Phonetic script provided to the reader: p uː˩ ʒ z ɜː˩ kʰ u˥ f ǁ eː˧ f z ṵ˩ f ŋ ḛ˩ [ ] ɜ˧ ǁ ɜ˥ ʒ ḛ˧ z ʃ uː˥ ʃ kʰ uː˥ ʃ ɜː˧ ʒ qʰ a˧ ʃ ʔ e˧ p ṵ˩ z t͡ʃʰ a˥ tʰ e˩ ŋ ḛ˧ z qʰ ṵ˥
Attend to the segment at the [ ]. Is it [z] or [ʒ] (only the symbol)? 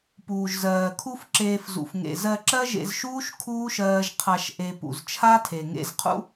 z